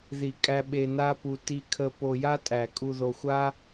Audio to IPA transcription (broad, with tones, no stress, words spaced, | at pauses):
ði˨ kʼæ˧ ɓe˧na˦pu˧ ti˧kʰə˧ po˧ja˦tʼæ˨ kʼu˨ðo˨xʷa˦